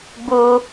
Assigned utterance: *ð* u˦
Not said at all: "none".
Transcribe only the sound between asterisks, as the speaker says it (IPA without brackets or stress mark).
b